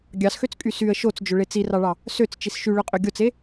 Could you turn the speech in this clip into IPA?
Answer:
ɡʲ ɑ s x ø t͡s kʼ y s y ə̯ ʃ o t͡s d͡ʒ ø ɭ e t͡s i r ɑ ɭ ɑ | s ø t͡s t͡ʃ i s ʃ y ɭ ø qʼ ø ɡʲ o t͡s e

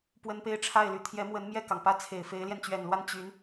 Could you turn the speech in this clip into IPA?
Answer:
p w ə˥ n p e˥ ɪ̯ ʈ͡ʂʰ a˥˩ ɪ̯ l y˨˩ t̪ʰ j ɛ˧˥ m w ə˧˥ n m j ɛ˥˩ k ɑ˩ ŋ p ä˥˩ t͡sʰ e˨˩ ɪ̯ f e˧˥ ɪ̯ l j ɛ˧ n t͡ɕ ɥ ɛ˨˩ n l w a˥˩ n t͡ɕ y˧˥ n

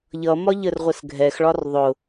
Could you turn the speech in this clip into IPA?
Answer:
ʎ ʌ m ɒ ʎ ə r ʁʷ ə s ɡʱ ɛ x ɭ ɒ r ðˤ ʊ

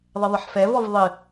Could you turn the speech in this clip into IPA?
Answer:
ðˤ ɘ ðˤ ɘ ħ f ɛ v ɔ v ðˤ ɨ

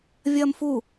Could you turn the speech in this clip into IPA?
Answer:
vʲ ɐː m f u

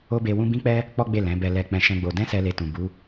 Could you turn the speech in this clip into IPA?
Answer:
o˦ b e˧ w ũ˦ b ĩ˦ k͡p ɛ˦ | k͡p ɔ˦ ɡ͡b e˦˨ l ɛ̃˨˦ b ɛ˧ l ɛ˧ k͡p ɛ̃˧ ʃ ɛ̃˦ ɡ͡b o˧ d ɛ̃˦ s ɛ˦ l e˧ t ũ˨ b u˨˦

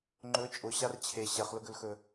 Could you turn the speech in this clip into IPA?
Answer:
ŋ͡ǃ ɵ t͡ʃʼ ʊ ɕ a r t͡ɕʰ e ɕ ɛ χ l ʊ ɡ ɵ l x ɵ

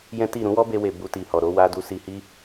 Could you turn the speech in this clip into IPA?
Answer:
j ɛ̃˦ t i˦˨ ɾ ũ˨˦ w ɔ˦ b e˧ w e˨ b u˧ t i˨ h ɔ˨ ɾ o˨˦ w a˧ d u˧ s i˧ h i˦

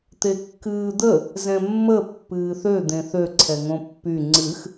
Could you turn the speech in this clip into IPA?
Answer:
t̪ e kː ɨː d̪ ə | z ɛ̃ mː ə pː ɨː θ ø d̪ ẽ θ ø ǀʰ ɛ ŋ õ pː y ŋ͡ǀ ɨ x

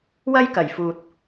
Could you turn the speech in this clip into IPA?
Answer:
w ɐ˧ j k ɐ˨˩ j f uː˨ t̚

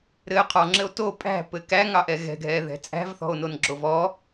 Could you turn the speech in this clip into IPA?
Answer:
ɾ ɘ qʰ ɔ ŋ͡ǁ ɘ o̯ t o pʼ æ̤ p ɘ k æ ŋ ɑ ʔ ɛ ɣ ɛ̤ ɡʱ ɛ ð ɛ̤ t͡sʼ æ̤ v θ ɔ̤ o̯ n o n ɡ͡ǁ o v ɔ

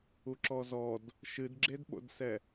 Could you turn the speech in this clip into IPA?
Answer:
u ǁ ɔ z ɔ d | ʃ ɨ d ɡ͡ǁ e d ɓ o̰ d s ɛ

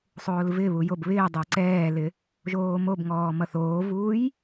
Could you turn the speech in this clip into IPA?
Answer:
sˤ oː l v ɪ β u j o b β ɪː dˤ ɛ ǀ ɛː l ɪ | ʒ oː m o b ŋ ɔː m ʌ θ oː v uː j

